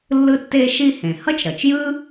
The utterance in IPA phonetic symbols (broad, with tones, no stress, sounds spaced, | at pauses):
lː ɯ˥ tː e˥ ʃ i˥ h ẽ˩ h ʌ˥ t͡ʃ ɾ ʌ˩ t͡ʃ j ɯ˥